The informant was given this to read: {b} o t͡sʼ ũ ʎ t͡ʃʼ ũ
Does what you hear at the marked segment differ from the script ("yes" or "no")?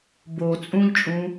no